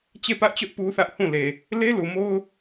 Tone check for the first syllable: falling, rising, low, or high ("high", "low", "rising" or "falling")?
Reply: falling